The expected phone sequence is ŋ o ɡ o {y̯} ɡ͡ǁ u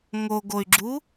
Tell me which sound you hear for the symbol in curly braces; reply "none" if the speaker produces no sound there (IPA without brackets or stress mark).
y̯